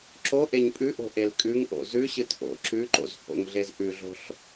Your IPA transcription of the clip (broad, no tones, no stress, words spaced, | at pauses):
ǁo ʔeɲpʼʉʔo̤ ʔelkʼʉŋʔo̰ zʉɕɨt ʔo̰ ǁʉǃo̰z ho̰ŋɮez ʔʉɮo̤ɬ